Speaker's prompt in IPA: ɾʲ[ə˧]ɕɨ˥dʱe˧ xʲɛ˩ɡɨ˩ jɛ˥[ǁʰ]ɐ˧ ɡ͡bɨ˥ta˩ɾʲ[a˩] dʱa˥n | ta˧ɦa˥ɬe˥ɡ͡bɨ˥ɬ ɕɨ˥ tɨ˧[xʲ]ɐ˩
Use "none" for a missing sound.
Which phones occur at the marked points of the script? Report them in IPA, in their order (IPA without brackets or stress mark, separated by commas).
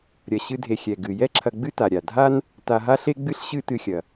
ɐ˧, ǁʰ, a˩, xʲ